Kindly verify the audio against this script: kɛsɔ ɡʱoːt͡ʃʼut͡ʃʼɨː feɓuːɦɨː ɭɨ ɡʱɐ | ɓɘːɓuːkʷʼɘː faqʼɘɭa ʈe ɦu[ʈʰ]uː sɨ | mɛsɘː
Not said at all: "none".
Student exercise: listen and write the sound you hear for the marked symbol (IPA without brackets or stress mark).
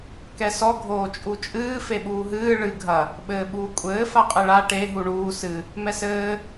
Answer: ɳ